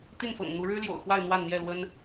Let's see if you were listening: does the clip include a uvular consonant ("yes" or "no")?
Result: no